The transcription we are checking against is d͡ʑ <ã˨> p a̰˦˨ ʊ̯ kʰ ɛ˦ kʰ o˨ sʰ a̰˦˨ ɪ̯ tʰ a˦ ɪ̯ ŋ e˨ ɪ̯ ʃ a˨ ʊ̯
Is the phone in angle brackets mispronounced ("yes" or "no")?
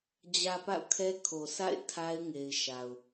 yes